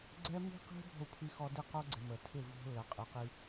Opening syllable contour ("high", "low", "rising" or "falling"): high